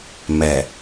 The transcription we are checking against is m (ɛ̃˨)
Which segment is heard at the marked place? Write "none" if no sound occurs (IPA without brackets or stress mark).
ɛ˨